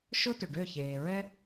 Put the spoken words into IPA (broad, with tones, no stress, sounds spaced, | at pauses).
ʃ ʊ˥ t ʏ˩ ɖ ø˥˩ ç eː˩ ɹ ɛ˥